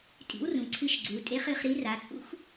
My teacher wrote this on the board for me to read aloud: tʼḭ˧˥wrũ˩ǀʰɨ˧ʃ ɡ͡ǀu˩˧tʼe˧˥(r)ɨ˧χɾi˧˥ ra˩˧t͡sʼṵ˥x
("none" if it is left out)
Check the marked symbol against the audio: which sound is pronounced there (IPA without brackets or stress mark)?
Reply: χ